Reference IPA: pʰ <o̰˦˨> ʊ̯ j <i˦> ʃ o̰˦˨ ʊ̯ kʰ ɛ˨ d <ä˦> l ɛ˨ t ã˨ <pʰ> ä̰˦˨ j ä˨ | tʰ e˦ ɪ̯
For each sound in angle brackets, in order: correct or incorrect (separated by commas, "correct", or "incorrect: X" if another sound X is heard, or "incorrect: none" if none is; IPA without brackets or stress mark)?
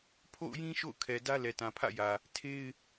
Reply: correct, incorrect: ĩ˦, correct, correct